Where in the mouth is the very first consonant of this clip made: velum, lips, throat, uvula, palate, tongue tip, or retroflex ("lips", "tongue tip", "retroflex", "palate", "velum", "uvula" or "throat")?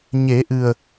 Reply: palate